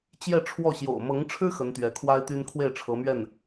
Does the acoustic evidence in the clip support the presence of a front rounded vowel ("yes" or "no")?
yes